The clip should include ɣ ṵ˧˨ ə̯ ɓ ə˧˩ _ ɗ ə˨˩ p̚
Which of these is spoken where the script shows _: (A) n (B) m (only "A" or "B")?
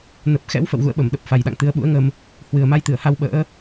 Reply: B